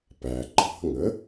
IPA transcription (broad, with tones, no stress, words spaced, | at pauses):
pæ˩ ǃʼɑ̤˧ŋə˩˥